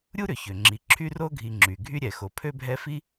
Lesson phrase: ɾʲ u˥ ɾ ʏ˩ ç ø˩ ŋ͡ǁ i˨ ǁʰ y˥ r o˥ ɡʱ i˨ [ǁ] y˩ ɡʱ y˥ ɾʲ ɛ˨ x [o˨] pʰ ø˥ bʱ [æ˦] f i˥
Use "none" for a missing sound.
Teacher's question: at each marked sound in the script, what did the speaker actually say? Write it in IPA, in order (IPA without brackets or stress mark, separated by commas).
ŋ͡ǁ, o˨, ɛ˦